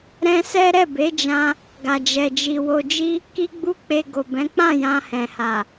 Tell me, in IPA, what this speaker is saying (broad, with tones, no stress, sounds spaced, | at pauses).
ɾ ɛ̃˦ s ɛ˦ ɾ ɛ˦˨ b e˨˦ d͡ʒ ã˧ | ɡ a˨ d͡ʒ ɛ˨ d͡ʒ i˨ w o˧ d͡ʒ i˦ | k i˦ ɡ͡b u˦ k͡p e˧ ɡ o˨ b ɛ̃˨˦ k͡p ã˦˨ j ã˧ h ɛ̃˨ h a˨